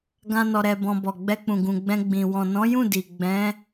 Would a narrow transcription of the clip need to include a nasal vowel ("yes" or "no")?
yes